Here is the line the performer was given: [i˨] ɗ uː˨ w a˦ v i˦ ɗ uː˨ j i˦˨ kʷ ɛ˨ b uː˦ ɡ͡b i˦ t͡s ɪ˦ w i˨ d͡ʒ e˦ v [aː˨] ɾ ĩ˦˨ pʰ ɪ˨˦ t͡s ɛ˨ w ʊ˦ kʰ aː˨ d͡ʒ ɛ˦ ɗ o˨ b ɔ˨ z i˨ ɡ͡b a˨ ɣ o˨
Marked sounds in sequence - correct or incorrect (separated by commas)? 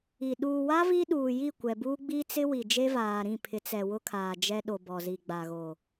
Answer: correct, correct